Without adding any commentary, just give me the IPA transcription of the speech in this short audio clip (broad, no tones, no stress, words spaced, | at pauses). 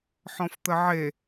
ħɔ̃ft̪əʕe